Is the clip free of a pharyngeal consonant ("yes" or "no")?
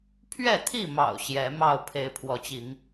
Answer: yes